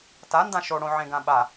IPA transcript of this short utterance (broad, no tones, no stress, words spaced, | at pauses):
tandã ʃoɽõ ʕẽɡãɓa